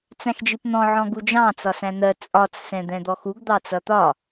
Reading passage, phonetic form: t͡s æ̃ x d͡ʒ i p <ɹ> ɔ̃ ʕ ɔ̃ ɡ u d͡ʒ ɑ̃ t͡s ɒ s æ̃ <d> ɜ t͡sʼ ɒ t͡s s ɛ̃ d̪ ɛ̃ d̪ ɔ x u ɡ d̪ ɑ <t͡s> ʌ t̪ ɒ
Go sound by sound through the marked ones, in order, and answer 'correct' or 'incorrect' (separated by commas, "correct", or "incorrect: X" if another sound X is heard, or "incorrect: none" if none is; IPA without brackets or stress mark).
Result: incorrect: n̪, incorrect: n̪, correct